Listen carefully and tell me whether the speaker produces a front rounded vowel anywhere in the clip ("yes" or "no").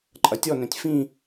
yes